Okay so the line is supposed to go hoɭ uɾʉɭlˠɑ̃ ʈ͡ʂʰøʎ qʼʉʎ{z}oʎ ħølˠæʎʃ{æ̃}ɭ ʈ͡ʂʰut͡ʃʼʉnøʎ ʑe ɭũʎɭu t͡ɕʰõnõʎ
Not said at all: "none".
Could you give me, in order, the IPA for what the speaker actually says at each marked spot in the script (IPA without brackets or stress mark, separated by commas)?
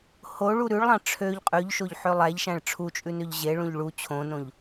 ʃ, æ̃